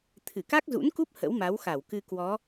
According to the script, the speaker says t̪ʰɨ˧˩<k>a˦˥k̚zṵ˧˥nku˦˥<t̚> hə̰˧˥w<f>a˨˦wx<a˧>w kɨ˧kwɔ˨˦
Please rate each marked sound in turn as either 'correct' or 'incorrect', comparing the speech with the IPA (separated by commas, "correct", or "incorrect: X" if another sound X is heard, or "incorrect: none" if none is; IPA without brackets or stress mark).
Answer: correct, incorrect: p̚, incorrect: m, incorrect: a˧˩